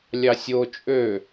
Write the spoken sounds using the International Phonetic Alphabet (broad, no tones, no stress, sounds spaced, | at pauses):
lʲ ɑ sʲ o t͡ʃʼ ø